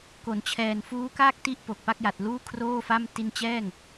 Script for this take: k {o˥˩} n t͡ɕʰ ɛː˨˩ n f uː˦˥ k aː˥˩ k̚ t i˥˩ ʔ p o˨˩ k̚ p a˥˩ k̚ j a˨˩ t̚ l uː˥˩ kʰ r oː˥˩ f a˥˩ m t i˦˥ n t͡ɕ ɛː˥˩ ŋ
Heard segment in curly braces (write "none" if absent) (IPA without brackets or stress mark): o˩˦